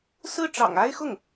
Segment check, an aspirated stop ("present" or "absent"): absent